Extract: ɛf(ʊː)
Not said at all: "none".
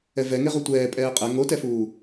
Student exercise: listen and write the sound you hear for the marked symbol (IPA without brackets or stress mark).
uː